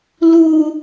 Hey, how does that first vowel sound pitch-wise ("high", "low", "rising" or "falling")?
low